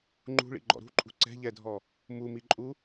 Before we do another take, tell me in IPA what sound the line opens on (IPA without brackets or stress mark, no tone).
ŋ͡ǃ